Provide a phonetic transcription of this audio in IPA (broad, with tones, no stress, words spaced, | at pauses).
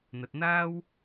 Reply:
n̪ɐ˨t̚n̪aː˥w